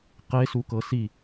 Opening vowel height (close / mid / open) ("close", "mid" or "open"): mid